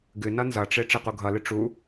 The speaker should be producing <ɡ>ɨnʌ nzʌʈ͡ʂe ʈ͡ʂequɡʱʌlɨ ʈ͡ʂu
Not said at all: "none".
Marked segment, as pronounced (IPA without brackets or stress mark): ɡ